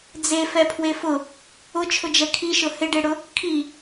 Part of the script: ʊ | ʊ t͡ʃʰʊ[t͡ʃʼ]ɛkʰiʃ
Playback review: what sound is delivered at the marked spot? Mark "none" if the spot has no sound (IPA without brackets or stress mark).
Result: d͡ʒ